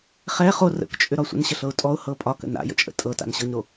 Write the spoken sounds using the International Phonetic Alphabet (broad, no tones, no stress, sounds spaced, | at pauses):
χ ɛ χ o r ə̰ k t͡ʃʼ ʏ ɾ ɒ sʷ ə̰ n ɕ ə ɬ ɤ ʊ̯ tʼ ɔ ʊ̯ h ɤ pʼ ɒ k ə̰ n a̰ j ə̰ t͡ʃʼ ə̰ tʼ ɤ t a̰ n ɕ ɤ ɲ ɾ o